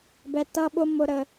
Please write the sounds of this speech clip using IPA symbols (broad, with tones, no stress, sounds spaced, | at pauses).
b ɛ˦ t ʌ˦ ɓ ʊ˦ m ʊ˦ ɾ ə˦